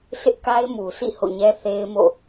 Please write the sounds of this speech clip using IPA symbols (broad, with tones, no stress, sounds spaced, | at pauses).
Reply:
s ɪ˦ ʔ k a˦ ɪ̯ m u˨ s ḭ˦˨ h o̰˦˨ ɲ ɛ˦ θ e˦ ɪ̯ m o̰˦˨